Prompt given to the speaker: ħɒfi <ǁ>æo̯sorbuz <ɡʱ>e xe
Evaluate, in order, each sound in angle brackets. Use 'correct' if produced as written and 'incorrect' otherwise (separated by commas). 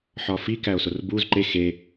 incorrect, incorrect